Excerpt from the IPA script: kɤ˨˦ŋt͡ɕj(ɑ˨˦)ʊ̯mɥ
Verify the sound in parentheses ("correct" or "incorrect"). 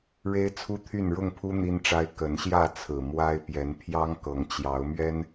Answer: correct